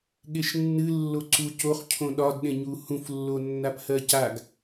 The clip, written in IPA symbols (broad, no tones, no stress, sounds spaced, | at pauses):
ɠ e ʃ nː ɨ lː o ǀ u c o χ cʰ õ ɗ ɒ d ɗ ẽ ɲ u h ũ f lː o nː a p h ɜ c a ɡ